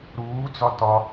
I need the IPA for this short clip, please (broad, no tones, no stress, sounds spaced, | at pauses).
ɾ uː d͡z ɒ t ɒ